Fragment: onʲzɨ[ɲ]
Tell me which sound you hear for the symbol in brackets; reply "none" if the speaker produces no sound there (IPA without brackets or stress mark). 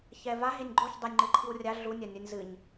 ɲ